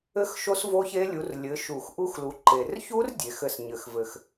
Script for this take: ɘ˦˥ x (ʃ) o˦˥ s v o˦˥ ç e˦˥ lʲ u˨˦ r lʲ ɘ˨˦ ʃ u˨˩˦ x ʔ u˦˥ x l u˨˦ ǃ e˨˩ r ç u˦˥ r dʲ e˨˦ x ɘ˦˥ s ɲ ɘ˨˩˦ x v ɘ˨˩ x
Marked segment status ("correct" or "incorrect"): correct